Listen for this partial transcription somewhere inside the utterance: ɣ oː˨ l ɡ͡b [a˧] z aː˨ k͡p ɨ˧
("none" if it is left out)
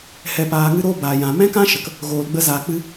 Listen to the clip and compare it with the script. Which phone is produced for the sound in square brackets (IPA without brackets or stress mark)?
ə˧